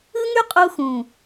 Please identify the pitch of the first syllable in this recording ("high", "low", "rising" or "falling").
high